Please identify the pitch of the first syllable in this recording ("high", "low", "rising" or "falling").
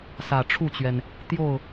low